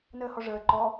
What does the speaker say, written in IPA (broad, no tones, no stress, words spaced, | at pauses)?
nəːhɔʐəː ǃɔ